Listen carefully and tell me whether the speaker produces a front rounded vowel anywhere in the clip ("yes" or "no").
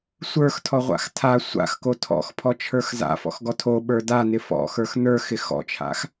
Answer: no